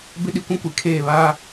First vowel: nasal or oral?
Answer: oral